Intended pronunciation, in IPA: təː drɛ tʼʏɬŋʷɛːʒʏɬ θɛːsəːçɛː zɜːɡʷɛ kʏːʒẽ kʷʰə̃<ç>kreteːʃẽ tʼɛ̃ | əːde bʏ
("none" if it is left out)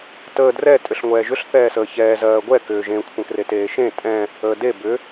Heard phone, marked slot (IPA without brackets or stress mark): none